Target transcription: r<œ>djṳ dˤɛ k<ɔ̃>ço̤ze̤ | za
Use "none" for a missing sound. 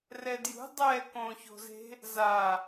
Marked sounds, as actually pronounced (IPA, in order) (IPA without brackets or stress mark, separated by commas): ɛ, õ